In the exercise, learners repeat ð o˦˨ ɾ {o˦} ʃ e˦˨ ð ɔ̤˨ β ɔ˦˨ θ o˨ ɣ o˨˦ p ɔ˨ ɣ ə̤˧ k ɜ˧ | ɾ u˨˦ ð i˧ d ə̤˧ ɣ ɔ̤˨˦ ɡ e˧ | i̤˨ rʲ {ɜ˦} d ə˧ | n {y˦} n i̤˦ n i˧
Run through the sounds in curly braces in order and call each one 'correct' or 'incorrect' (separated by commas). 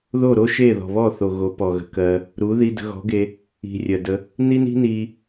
correct, incorrect, incorrect